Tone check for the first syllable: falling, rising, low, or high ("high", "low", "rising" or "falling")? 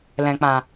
low